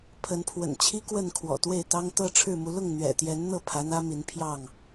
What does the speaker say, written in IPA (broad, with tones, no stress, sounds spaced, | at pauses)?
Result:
pʰ ə˨˦ n pʰ w ə̰˨˩ n t͡ɕʰ i˦ k w ə˥˨ n kʰ w ɔ̰˨˩ t̪ w e˥˨ ɪ̯ t̪ ɑ˦ ŋ t̪ ɤ˥˨ ʈ͡ʂʰ ɻ̩˥˨ m u˨˦ l ʊ˥˨ ŋ n̪ ɥ ɛ̰˨˩ t̪ j ɛ˨˦ n n̪ ɤ˥˨ pʰ ä˨˦ n̪ ä˦ m i˨˦ n pʰ j ɑ˥˨ ŋ